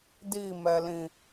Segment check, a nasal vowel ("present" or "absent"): present